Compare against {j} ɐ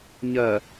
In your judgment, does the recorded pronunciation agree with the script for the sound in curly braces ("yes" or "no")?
no